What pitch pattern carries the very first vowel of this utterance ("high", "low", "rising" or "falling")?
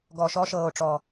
low